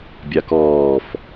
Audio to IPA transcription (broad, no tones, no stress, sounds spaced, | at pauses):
bʲ a k ɔː f